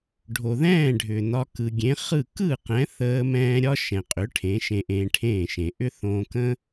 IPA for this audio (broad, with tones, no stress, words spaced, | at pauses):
ɖʱo˩ðɛ̃ː˥˩ɖʱʏ˩ nɒ˧ kɯ˩ɡʲẽ˩˥χɯ˥˩ kɯ˥˩ qɛ̃˩˥θəː˧ mɛ̃ː˥ ɾʲɒ˥ʃɛ̃˩qʼʏ˩˥ ʈʰẽ˩˥ʃẽ˧ʔẽː˧ʈʰẽː˥˩ ʃẽ˩ʔʏ˥ θõː˧kə̃˥